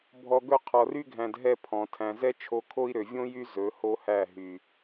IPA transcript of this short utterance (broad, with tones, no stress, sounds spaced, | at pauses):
bʱ ɔ˧ ɡ ɵ˦ qʰ ɔ˨ r y˦ ɡʱ æ̃˨ d ɦ ɛ˦ pʰ ɔ̃˨ tʰ æ̃˨ z ɛ˦ t͡ʃʰ o˧ kʰ o˦ i̯ ɾ ø˨ vʲ õ˦ j y˦ z ɵ˨˦ h o˦ h æ˦˨ ɦ y˨